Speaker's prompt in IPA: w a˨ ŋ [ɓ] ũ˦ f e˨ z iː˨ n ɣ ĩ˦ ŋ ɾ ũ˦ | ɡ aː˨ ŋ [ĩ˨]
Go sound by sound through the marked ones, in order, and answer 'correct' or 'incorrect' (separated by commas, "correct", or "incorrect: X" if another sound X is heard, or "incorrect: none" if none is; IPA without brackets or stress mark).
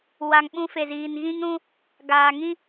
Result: correct, incorrect: ĩ˦